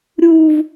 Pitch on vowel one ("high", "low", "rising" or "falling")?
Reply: high